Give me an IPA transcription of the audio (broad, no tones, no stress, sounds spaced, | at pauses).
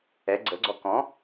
ɛ ɡ͡ǀ ə ɡ͡ǀ ɔ k ɔ̃